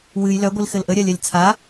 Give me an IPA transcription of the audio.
w ɨ j l œ ɡʷ i l x ɘ l ʔ ə ɾʲ a lʲ a lʲ t͡sʰ a

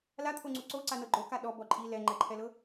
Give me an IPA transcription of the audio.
l a t̪ʰ o ŋ͡ǀ u ǀ o ǀ a n ɤ ɡ͡ǃ o k a ɗ ɔ b ɔ ǃʼ i l ɛ ŋ͡ǃ ɛ ǃʰ ɛ l ɤ

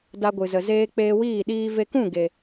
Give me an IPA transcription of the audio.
d a˧ ɡʷ ɨ˨ z ə˨ z eː˧ k͡p eː˧ w iː˦˨ ɗ iː˧ v e˧ k ũ˦˨ ɡ e˨

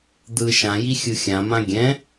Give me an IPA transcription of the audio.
d̪ ɯ ʃ ã j i xʲ ɯ xʲ ã m ã ɡʲ ɛ̃

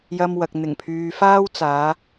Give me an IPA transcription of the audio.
j ɐ˧ m w ɐ˨ k̚ n̪ ɪ˨˩ ŋ pʰ yː˨ f aː˥ w t͡s aː˨˧

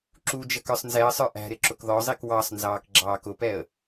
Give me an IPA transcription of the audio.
ǁ u d͡ʒ ə k ə˞ sˤ n z ɛ ə̯ sˤ ə˞ ʔ æ̤ ɾ ɪ ǁ ʊ k ð ɔ zˤ i k w ɑ sˤ n z ɑː k ɡ͡ǁ ɑː k ʊ p ɛ ə̯

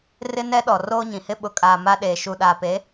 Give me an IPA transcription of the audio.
r ɪ˦ n ɛ˦ ɗ ɔ˨ r oː˦ ɲ ĩ˨ h ɪ˦ ɓ ʊ˨ kʼ aː˨ m a˦ ɗ eː˨ ʃ u˨ ɗ aː˨ p e˨˦

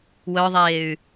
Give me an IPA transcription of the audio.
w œ ðˤ eː y̯

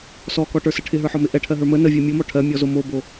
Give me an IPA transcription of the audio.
s ɔ k ɔ ʈ ə˞ s ə ʈʰ ɪ ɦ ə˞ ħ ɔ m ɪ ʔ ɛ ʈʰ ɜ ɦ ə˞ m ə n ə vʲ ɜ mʲ o m ɔ ʈʰ ɜ mʲ ɔ z o m o b o

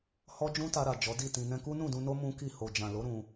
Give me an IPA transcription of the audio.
h ɔ˦ d͡ʒ ũ˦ t a˧ ɾ a˨ d͡ʒ ɔ˨˦ d i˦˨ t ĩ˧ n ɛ̃˧ k u˦ n ũ˦˨ d ũ˧ n o˦ m ũ˦ k i˦˨ h o˨ d͡ʒ ã˨ l o˨˦ ɾ ũ˧

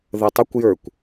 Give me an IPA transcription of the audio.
ð ə tˤ ə kʷ j ə˞ kʷ

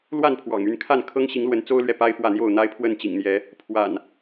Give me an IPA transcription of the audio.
l w a˥˨ n pʰ w ɑ̰˨˩ ŋ y˥˨ n kʰ a˥˨ n kʰ ɤ˦ ŋ ɕ i˨˦ ŋ l w ə˨˦ n t͡s o˦ ʊ̯ l ɥ ɛ˨ p a˦ ɪ̯ f w ä˥˨ n̪ j o˥˨ ʊ̯ n̪ a˦ ɪ̯ pʰ w ə˥˨ n t͡ɕ ḭ˨˩ ŋ n̪ j ɛ˨˦ | pʰ w a̰˨˩ n

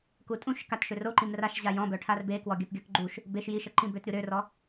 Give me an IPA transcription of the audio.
k u tʼ ũ ʃ k a t ʃ ø r o ǃ ĩ m r a ʃ ʑ a j ɔ̃ b œ ʈʰ a r b e k w ɔ ɡʲ œ p ɡʲ œ k ɡ͡ǃ u ʃ | b e ʃ j i ʃ ə ǃ ĩ b ø t ɾʲ u ɾ ø r ɔ

